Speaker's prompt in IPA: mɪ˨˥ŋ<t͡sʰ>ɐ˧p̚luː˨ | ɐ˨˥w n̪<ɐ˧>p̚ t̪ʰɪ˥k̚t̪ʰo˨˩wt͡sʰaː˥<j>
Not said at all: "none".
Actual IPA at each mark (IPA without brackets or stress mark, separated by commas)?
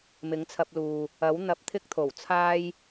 t͡sʰ, ɐ˧, j